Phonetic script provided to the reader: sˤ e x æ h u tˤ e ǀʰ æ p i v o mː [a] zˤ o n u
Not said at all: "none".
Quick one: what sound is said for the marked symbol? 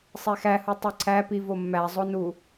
æ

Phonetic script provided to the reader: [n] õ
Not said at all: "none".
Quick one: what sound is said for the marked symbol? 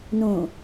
n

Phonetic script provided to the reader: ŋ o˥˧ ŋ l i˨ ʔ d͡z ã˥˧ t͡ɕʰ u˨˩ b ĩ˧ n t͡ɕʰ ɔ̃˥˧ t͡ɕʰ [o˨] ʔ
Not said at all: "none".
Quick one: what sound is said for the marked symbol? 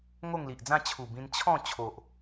o˨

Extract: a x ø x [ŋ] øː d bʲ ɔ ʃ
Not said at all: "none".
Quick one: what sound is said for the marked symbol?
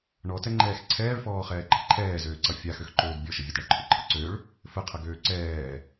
ǃ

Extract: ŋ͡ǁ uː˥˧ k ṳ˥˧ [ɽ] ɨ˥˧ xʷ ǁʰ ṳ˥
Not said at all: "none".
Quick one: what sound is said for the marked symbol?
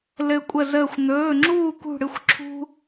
ɽ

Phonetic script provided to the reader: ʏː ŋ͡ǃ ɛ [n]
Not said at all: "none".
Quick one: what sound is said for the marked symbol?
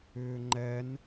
n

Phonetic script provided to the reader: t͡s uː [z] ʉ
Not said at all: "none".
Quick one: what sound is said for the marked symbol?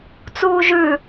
ʒ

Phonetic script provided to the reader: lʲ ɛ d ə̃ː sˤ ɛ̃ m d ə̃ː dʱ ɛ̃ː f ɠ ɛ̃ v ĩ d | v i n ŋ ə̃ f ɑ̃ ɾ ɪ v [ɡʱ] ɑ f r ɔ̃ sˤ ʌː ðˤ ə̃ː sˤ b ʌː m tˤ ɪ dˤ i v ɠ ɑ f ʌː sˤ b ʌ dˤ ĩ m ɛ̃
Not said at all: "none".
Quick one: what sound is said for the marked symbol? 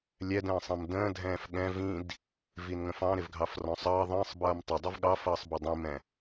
ɡʱ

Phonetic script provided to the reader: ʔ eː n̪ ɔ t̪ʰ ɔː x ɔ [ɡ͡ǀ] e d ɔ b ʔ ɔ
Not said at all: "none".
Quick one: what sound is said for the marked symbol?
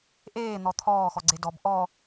ɡ͡ǀ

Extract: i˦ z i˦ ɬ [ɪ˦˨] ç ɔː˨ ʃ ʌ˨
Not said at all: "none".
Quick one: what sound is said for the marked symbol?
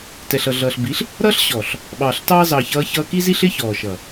ɪ˦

